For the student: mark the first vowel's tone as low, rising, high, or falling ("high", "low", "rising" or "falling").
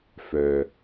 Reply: low